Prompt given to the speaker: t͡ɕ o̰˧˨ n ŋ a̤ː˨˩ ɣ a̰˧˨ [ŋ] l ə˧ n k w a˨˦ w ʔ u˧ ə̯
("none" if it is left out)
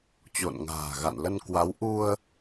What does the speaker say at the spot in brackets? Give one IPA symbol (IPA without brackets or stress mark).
n